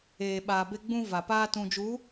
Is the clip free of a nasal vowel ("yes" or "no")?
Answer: no